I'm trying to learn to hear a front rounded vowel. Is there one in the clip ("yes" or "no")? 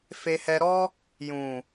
no